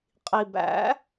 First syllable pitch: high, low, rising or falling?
low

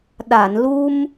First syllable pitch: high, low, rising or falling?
low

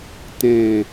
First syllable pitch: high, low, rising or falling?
falling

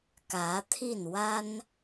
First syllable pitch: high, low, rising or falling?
rising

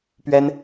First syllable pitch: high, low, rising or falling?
high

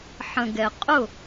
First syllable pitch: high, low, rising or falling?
low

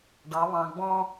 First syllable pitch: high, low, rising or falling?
rising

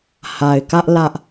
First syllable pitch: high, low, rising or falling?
low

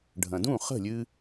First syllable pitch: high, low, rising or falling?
low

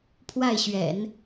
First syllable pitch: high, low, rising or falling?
falling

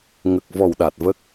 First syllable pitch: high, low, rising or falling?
low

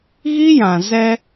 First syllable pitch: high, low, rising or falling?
high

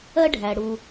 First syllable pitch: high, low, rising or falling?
high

